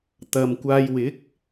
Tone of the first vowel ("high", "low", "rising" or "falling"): low